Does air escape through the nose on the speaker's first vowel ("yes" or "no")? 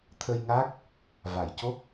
no